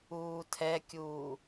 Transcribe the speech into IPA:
uːtʰɛkʲuː

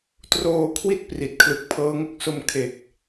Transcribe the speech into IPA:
troː˧ kʰwi˥˩t̚ pri˨˩t̚kʰlɯ˨˩k̚pʰɤː˦˥ŋo˥˩k̚ so˧m kʰe˨˩k̚

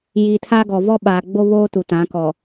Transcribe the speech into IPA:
ji˨ tʰa˦ɡɔ˨ vɔ˦ɓaː˨ɡ͡bo˦βoː˦ tu˨tã˨˦kɔ˨

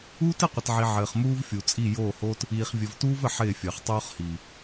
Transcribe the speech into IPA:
uː˦tɪ˦˨qʷɪ˨tʕi˨ ʕɘː˨χmuː˦vfʲu˨t͡sʼi˦˨ joː˦˨hoː˦t | iː˨χvʲɘ˨v tuː˦vɘ˨ ħɪː˦˨fʲɘː˨χ tˤoː˦χhiː˨

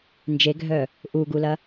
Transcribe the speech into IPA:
nd͡ʒeɡʱœ | ʔuɡulɐ

